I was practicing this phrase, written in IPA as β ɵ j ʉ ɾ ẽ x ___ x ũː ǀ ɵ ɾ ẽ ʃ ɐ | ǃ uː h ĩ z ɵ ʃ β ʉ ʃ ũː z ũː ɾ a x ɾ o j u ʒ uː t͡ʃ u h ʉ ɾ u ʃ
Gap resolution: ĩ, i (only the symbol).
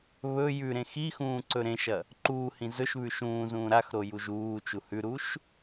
i